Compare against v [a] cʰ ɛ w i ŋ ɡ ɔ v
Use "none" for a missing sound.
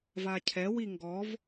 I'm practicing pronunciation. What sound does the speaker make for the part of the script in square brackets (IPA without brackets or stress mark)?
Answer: a